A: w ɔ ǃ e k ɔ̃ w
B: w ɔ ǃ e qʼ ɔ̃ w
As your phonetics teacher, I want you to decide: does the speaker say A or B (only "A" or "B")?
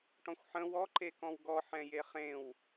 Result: A